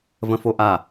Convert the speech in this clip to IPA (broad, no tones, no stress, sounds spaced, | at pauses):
v ə̃ f o ʔ a